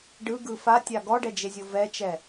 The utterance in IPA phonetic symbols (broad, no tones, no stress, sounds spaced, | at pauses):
ɖ ɯ ɡ ɯ f a tʲ a ɡ ɔ ɖ ɛ d͡ʒ e zʲ o v ɛ t͡ʃ ɛ